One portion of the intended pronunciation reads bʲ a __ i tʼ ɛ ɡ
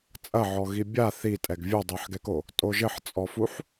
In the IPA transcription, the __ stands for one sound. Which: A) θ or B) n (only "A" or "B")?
A